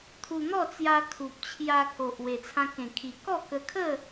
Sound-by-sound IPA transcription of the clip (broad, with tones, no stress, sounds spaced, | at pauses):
t̪ʰ u˧ n̪ ɔ˥˧ t͡s j a˧ kʰ u˨ p̚ t͡ɕʰ j a˧ k o˨ ʔ w e˨˩ t͡sʰ ã˧ k ẽ˨˩ kʰ i˨˩ k ɔ˥˧ k ə˧ kʰ ə˥˧